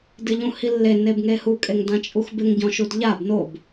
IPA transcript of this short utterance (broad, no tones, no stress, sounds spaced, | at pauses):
d ɪ ʎ ũ h i lː e n e b ŋ e h u kʼ e ŋ d ã t͡ʃʼ u x b ɪ ŋ ɟ ɔ̃ ʃ u d ʎ a b n o b